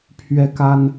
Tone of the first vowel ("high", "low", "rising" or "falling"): high